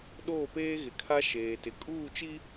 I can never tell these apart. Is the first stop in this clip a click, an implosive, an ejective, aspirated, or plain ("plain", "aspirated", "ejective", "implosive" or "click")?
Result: implosive